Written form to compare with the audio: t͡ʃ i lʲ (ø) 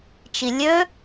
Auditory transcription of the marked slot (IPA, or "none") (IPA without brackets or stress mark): ø